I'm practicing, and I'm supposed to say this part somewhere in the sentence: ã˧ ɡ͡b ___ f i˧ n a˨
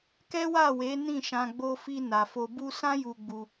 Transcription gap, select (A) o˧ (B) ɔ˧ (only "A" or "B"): A